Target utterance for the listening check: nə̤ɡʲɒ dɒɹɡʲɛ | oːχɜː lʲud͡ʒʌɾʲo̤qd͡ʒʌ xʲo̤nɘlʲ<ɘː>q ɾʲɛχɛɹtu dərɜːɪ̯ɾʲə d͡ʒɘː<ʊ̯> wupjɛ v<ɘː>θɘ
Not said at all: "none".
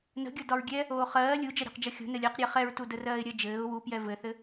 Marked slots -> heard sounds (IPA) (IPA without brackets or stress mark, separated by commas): ɘː, ʊ̯, ɘ